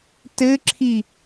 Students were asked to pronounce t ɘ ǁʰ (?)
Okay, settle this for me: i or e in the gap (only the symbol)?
i